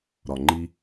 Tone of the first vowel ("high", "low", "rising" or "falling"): low